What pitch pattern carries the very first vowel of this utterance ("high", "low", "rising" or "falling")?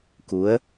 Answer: rising